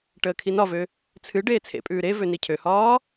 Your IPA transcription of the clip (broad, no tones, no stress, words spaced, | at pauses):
ʈəːkʰinɒvø | t͡sʰɨ ɖeːt͡sʰḛpʼʉː ɾe vønicʰøhɒː